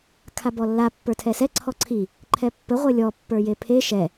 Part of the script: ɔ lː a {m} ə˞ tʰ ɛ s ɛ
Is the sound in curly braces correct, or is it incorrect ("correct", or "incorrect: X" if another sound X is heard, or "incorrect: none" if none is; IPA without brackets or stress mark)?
incorrect: pː